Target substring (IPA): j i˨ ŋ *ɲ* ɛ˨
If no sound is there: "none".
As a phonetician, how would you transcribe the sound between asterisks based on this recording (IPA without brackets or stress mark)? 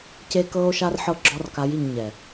ɲ